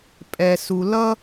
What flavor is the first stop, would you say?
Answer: ejective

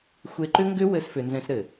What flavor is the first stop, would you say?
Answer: click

